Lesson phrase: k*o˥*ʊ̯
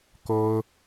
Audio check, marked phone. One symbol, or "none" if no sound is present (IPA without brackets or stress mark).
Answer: o˥